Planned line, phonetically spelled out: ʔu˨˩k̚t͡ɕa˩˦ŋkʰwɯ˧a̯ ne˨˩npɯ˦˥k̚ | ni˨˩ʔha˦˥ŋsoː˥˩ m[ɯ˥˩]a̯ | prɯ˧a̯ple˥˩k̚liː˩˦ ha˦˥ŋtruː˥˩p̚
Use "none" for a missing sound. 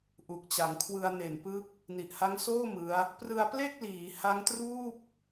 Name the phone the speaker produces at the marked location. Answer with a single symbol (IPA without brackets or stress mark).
ɯ˦˥